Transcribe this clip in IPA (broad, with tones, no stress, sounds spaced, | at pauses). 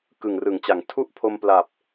k ɯ˨˩ ŋ r ɯ˨˩ ŋ t͡ɕ a˨˩ ŋ tʰ u˥˩ ʔ pʰ o˧ m p l a˨˩ p̚